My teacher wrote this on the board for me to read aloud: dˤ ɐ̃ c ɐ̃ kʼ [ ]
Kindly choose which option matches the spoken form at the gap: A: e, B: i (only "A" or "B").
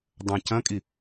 B